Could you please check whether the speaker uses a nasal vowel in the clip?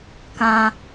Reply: yes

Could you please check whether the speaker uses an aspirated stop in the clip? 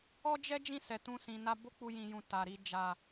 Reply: no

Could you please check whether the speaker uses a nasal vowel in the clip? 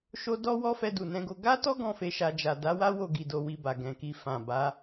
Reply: yes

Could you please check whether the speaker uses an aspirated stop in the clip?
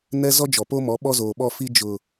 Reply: no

